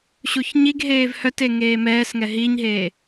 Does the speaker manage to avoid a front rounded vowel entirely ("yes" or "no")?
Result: no